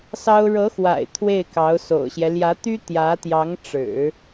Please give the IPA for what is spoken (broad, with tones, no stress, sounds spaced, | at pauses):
s ɑ˥ ʊ̯ ɻ ɤ˧˥ x w a̰˨˩ ɪ̯ t̪ʰ w e˥˩ ɪ̯ k ɑ˧˥ ʊ̯ s o̰˨˩ ʊ̯ ɕ j ɛ˦ l j ä˧˥ t̪ y˥ t̪ j ä˧˥ t̪ j ɑ˧˥ ŋ ʈ͡ʂ ɻ̩˨˩˦